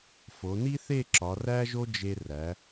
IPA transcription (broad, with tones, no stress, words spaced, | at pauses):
fo˩˧ni˥θe˥˧ ǁɒ˩˧ræ˥ʒo˥ d͡ʒe˧ræ˩˧